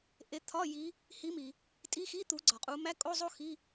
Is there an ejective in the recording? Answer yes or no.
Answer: yes